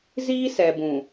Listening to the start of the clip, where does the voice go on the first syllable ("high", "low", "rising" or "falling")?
high